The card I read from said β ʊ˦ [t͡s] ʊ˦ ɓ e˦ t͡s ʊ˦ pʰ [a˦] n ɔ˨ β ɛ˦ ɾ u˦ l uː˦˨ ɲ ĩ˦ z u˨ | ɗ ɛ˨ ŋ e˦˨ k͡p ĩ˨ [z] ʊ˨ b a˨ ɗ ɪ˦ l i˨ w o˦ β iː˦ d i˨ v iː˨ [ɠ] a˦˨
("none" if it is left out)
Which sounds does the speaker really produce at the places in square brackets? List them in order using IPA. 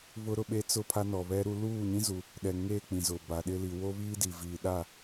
ɾ, a˦, z, ɗ

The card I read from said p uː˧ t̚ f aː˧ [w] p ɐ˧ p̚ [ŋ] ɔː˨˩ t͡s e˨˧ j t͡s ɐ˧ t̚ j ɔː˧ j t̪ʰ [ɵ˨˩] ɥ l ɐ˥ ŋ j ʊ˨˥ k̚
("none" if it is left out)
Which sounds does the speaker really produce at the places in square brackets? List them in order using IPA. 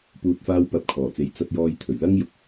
w, kʰ, ɵ˨˩

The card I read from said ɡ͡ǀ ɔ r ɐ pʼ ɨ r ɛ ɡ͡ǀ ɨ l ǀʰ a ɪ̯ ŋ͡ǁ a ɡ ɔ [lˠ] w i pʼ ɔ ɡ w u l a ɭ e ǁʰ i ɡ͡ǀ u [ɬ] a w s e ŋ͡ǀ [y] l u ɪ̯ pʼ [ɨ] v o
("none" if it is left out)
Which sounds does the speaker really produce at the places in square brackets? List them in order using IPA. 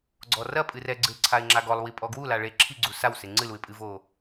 lˠ, s, ɨ, ɨ

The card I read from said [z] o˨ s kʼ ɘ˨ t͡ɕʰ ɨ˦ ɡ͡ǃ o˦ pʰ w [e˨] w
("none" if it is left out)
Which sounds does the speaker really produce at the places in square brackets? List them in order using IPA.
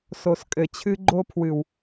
s, ɨ˨

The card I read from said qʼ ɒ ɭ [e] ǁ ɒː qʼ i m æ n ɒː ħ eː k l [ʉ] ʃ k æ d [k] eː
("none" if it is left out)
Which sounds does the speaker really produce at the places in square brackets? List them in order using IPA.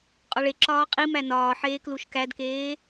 e, u, k

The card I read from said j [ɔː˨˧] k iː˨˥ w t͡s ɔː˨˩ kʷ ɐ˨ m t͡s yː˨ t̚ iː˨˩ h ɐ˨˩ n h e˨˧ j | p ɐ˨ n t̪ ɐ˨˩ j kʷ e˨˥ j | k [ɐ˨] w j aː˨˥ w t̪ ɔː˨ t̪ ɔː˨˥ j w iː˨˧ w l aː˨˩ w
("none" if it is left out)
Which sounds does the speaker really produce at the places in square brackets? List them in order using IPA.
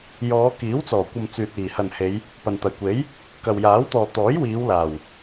ɔː˨˧, ɐ˨

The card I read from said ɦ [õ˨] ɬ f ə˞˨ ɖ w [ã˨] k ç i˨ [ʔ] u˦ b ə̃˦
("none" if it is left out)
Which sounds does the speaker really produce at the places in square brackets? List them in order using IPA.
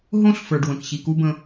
õ˦, ə̃˨, k

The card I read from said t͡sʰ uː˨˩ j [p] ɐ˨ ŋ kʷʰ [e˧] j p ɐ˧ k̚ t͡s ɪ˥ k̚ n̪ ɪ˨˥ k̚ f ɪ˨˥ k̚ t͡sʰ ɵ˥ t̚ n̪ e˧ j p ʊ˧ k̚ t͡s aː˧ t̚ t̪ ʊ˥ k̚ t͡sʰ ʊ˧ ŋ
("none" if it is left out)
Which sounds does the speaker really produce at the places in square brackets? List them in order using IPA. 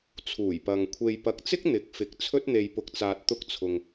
p, e˧

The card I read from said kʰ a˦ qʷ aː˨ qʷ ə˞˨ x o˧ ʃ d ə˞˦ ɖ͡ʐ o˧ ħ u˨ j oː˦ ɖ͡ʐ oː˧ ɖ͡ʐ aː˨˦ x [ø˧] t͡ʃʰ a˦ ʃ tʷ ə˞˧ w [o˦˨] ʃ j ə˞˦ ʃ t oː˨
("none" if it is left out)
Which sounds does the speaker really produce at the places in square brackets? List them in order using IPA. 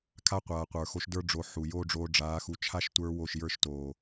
u˧, o˦˨

